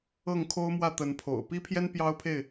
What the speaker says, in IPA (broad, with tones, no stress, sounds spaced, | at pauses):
ɤ˥˨ ŋ kʰ o˦ ʊ̯ m w ä˥˨ t̪ ə˨˦ n pʰ o̰˨˩ ʊ̯ p i˦ pʰ j ɛ˦ n p j ɑ˦ ʊ̯ pʰ e˥˨ ɪ̯